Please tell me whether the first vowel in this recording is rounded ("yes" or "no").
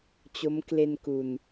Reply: yes